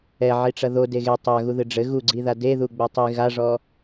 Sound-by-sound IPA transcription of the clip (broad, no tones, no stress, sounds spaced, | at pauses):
ɛ ʕ i ʈ͡ʂ ɐ ð o d e ɣ e tˤ a ɣ u ð ɨ ɖ͡ʐ ɘ ɣ u ɡ͡ǀ i ð a d e ð u ɡ͡b ɛ tˤ i ɣ a ʐ ɔ